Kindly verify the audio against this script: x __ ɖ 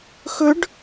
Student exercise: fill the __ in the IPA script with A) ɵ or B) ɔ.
A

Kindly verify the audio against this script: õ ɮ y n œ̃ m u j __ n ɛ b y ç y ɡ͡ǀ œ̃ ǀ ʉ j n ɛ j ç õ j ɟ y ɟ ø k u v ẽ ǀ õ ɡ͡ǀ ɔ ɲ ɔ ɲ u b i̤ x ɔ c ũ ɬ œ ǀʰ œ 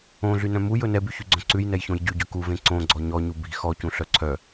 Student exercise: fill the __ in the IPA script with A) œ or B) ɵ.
B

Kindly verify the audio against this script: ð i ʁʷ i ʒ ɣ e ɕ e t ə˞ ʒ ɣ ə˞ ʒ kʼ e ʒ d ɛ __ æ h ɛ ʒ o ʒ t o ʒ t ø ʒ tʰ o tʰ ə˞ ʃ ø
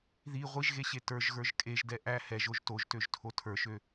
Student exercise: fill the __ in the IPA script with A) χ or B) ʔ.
B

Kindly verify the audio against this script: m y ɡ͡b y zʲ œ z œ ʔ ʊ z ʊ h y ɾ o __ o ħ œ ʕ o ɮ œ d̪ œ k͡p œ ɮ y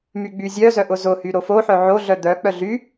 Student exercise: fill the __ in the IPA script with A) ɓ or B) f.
B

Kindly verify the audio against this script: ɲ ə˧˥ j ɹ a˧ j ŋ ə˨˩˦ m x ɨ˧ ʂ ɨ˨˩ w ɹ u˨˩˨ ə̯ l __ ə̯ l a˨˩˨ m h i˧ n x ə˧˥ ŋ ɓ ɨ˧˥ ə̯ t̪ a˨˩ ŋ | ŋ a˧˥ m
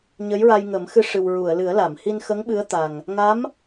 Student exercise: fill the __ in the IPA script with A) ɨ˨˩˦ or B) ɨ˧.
A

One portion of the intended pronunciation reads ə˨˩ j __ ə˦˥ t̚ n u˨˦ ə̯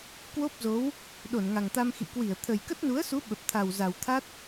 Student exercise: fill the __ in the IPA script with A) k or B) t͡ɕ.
A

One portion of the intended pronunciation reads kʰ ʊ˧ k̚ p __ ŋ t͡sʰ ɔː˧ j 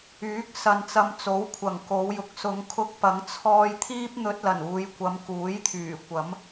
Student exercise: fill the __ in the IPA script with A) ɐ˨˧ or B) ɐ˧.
A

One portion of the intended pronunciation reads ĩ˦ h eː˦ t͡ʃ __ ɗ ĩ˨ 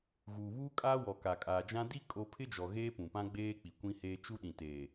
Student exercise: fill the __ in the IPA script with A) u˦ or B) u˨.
A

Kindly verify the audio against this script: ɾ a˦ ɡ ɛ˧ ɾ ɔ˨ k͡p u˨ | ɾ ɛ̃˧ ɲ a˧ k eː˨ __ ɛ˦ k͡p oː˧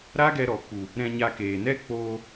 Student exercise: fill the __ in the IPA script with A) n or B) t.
A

